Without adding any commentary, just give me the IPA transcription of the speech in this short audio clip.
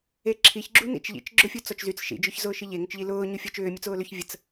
e ǁʰ i ç ɡ͡ǁ u n ḭ t͡ʃ ʎ ḭ t͡ʃ ɡ͡ǁ ʊ fʲ u t͡s ɔ t͡ʃ z y t͡s ʃ ḭ d͡ʒ ʏ ç z ʊː ʃ i ʎ e ŋ ʏ t͡ʃ ʎ i l ʊː ɲ u fʲ ɔ t͡ʃ ʏː mʲ u t͡s ʊː l ʏ ç vʲ ə t͡s

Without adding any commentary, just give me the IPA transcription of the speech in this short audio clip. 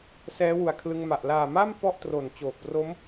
s ɛː˦˥ w u˨˩ a̯ kʰ l ɯ˧ ŋ m a˨˩ ʔ l aː˨˩ m a˥˩ m p ɔ˥˩ ʔ t r o˨˩ n t͡ɕ oː˨˩ k̚ p r o˦˥ m

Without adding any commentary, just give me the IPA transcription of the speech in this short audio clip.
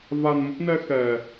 v a˧ n m ə˦˥ p̚ n ɛ˧ x ɛ˨˩

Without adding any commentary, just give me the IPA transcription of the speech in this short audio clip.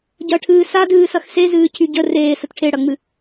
ɟ ɐ ʈʰ ɨː s a d ɨː s ɐ x s e z ɨː cʰ y ɟ ə r eː s ə t ʈʰ e ɽ ɐ ŋ͡m ɨ

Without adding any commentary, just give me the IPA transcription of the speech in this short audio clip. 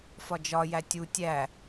f ɒ d͡ʒ ɒ j æ tʲ u tʲ æ

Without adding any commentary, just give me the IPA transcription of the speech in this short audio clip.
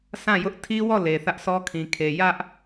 sʰ ã˦˨ j ʊ˦ ʔ tʰ i˦ w ɔ˦˨ l e˨ θ ä˦ ʔ sʰ ɔ˦ kʰ ĩ˨ kʰ e˨ j ä˦ ʔ

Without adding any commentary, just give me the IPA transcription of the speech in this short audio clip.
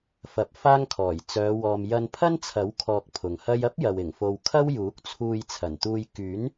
f ɐ˨ p̚ f aː˥ ŋ kʰ ɔː˨˩ j t͡s œː˨˧ w ɔː˨ m j ɐ˧ n pʰ ɐ˥ n t͡sʰ ɐ˨˥ w kʰ ɔː˧ k̚ pʰ ʊ˨ ŋ h ɐ˥ j ɐ˥ p̚ j ɐ˨ w ɪ˨˩ ŋ f o˨ w kʰ ɐ˥ w j uː˨˥ k̚ t͡sʰ uː˧ j t͡sʰ ɐ˨˩ n t̪ uː˧ j k yː˨˥ n

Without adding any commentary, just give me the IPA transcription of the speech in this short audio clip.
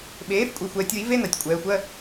ɓ eː˩˥ f kʷʼ e˩˧ xʷ ɛː˩˧ tʲ w i˩˥ v e˧˥˧ n a˩˧ tʲ kʷʼ ɛː˩˧ xʷ ɜ˧˥˧

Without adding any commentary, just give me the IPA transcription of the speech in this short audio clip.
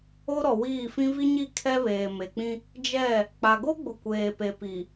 o˦ ɾ ɔ˨ w iː˦˨ f ĩ˦ v i˦ ɲ i˦˨ kʰ ɛ˦ β eː˨ m e˨ k͡p ĩ˦ | d͡ʒ ɛ˦˨ | k͡p a˨ ɡ o˦ ɡ͡b ʊ˨ kʷ eː˨ p e˨ p i˨

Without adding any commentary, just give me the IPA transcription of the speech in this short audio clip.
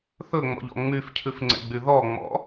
θ ɵ ŋ͡m ɔ̰ ʎ ɔ̰ ŋ͡m y f cʰ ʉ f ŋ͡ǀ ɛ̰ ɡ͡b y ð ɔ ŋ͡m ɔ̰

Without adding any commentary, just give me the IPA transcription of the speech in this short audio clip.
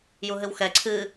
j u ɦ ɨ w x ɛ ǀʰ ɨ

